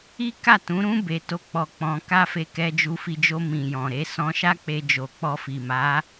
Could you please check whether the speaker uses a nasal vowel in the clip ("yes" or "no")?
yes